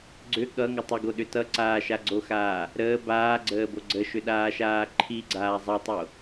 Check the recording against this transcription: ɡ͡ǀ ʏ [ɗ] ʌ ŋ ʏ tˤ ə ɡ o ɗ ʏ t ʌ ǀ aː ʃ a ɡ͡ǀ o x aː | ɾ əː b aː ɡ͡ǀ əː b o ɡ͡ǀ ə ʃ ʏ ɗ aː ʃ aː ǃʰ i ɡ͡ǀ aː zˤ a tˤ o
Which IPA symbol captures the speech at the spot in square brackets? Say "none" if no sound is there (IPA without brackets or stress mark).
ɠ